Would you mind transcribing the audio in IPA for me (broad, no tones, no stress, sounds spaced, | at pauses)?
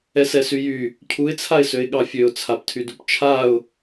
ɛ s ɛ s y j y | cʰ u ɪ̯ t͡sʰ a ɪ̯ s ø ɪ̯ ɠ ɑ fʲ ø ʊ̯ t͡sʰ a p tʰ y d u p t͡ʃʰ a ʊ̯